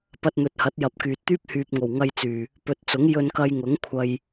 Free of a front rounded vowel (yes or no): no